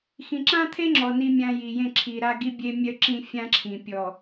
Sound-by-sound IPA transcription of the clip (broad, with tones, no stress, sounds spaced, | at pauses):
x ĩ˨ ǁ ã˦ t̪ʰ e˦ ŋ͡ǁ ɔ˨ n i˦ mʲ ã˦ j i˨ j ẽ˦˨ ǁʰ i˨ ɾ a˦ ɡ i˦ bʲ e˦ mʲ œ˦ ǁ ĩ˦ fʲ ã˦ ǁʰ ĩ˨ pʲ ɔ˨